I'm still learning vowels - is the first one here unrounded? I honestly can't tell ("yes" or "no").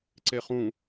yes